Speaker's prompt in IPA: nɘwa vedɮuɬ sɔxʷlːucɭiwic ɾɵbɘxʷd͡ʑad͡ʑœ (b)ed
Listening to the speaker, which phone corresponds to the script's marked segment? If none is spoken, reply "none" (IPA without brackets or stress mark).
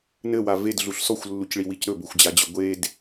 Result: ɡʷ